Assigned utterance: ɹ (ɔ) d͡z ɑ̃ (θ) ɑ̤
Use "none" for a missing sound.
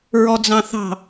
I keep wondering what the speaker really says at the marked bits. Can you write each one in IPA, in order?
ɔ, θ

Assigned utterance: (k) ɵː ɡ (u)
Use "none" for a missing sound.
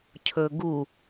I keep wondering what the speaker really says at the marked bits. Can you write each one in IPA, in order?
cʰ, u

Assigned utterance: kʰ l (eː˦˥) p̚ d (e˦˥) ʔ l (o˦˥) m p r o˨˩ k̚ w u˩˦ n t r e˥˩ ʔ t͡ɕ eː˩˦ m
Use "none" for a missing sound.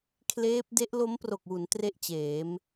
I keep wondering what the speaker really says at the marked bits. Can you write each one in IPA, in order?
eː˦˥, e˦˥, o˦˥

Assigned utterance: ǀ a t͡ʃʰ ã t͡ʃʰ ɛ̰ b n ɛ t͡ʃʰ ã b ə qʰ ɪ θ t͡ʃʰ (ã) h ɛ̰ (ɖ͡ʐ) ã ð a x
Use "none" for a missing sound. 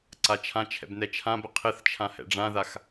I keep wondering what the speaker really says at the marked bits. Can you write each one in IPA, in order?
ã, ɖ͡ʐ

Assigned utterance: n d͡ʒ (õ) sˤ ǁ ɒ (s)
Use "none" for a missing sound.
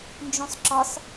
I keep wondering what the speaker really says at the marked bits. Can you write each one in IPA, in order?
õ, s

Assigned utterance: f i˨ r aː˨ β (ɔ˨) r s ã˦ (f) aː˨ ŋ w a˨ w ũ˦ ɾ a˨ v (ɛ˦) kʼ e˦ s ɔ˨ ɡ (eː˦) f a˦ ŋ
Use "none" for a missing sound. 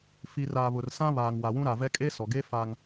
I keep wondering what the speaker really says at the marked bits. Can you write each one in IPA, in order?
ʊ˨, β, ɛ˦, eː˦

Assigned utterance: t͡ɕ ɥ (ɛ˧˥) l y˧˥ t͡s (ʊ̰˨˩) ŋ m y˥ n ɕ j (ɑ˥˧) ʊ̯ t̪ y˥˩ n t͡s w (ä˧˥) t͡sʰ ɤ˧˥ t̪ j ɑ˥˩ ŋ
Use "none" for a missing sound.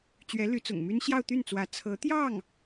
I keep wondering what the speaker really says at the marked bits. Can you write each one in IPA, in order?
ɛ˧˥, ʊ̰˨˩, ɑ˥˧, ä˧˥

